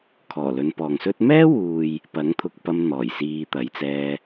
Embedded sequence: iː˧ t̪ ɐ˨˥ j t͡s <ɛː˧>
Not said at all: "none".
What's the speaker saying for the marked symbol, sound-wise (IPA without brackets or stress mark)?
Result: ɛː˧